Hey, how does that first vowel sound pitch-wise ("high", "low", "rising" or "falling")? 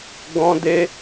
high